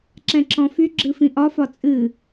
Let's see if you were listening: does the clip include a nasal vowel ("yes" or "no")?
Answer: yes